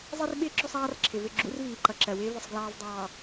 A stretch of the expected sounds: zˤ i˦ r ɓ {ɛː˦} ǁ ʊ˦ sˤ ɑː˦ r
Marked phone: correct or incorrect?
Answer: incorrect